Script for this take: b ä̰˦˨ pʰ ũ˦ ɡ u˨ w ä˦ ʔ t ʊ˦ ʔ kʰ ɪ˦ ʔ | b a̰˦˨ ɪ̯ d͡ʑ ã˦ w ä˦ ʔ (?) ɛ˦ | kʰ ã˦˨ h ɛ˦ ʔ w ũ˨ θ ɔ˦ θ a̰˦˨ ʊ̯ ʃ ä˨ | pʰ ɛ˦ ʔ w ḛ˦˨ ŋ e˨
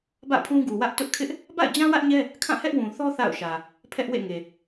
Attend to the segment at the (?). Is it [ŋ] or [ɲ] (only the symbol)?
ɲ